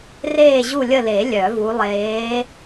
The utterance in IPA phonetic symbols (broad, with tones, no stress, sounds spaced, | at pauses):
r eː˦˨ ʑ u˦˨ lʲ ə˦˨ l e˨˩˦ lʲ œ˨˩˦ v u˨˦ lˠ eː˨˦